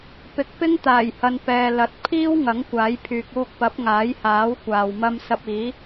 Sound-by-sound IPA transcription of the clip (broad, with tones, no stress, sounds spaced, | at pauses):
p ɪ˨˥ k̚ p ɪ˥ ŋ t̪ aː˨˩ j h ɐ˨ n p ɛː˨ l ɐ˨˥ t̚ pʰ iː˥ w ŋ ɐ˨˥ ŋ kʷ aː˨˥ j pʰ yː˨ k̚ uː˧ k̚ p ɐ˨˥ p̚ ŋ aː˨˥ j h aː˨˥ w kʷ aː˨ w m ɐ˥ m s ɐ˧ p̚ iː˨˥